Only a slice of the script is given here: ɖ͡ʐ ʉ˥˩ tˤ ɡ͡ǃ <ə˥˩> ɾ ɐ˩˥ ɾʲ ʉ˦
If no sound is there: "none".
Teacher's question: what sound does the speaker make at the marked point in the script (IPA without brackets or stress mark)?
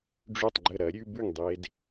ə˥˩